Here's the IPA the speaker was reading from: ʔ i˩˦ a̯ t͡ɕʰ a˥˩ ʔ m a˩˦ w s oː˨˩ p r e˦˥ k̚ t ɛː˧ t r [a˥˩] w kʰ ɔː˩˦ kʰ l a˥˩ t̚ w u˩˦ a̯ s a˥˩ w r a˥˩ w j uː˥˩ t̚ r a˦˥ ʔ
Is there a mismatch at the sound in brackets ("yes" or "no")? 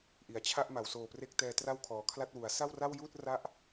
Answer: no